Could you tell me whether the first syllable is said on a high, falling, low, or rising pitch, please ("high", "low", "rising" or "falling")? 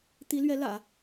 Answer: rising